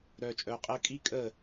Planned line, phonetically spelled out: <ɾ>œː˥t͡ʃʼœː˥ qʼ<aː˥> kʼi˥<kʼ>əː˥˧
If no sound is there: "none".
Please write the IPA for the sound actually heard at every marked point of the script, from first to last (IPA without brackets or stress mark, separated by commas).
ɾ, əː˥, kʼ